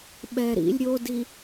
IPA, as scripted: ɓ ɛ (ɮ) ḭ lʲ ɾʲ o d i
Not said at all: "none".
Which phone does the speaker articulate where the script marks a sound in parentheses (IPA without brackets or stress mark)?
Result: ɾ